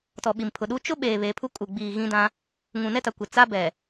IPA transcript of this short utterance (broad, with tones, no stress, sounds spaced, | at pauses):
t ɔ˨ ɓ i˨ m pʰ ʊ˨ ɗ uː˦ t͡ʃ ʊ˦ ɓ eː˨ β e˨˦ pʰ u˦ kʼ uː˨ ɡ͡b iː˨ ɣ ĩ˦ d ã˦ | ŋ ũ˨ n ɛ˦ t a˨ kʷ ɪ˨ t͡s a˦ b ɛ˨